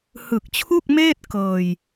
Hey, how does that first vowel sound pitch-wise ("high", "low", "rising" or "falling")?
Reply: low